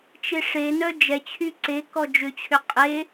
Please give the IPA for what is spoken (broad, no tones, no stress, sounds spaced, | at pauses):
t͡ʃ e ʂ e n œ d͡ʒ ɛ t͡ɕʰ y ǀ e k ɔ d͡ʒ ʏ t͡ɕʰ ʏ qʼ e